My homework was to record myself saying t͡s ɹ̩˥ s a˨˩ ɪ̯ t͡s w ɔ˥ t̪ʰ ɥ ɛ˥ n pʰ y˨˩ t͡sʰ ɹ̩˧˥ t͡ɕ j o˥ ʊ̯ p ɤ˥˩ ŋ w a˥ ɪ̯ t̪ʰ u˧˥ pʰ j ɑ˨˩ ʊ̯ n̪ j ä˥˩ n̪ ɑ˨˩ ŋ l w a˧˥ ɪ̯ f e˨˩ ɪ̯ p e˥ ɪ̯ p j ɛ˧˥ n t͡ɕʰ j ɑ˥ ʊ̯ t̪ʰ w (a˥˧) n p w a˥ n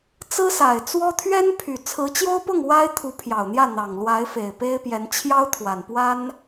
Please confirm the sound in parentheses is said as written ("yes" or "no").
no